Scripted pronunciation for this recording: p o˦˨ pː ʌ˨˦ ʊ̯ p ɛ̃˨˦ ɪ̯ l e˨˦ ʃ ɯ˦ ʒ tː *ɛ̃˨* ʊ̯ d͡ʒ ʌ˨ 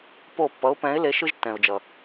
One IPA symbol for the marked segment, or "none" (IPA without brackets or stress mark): ɛ̃˨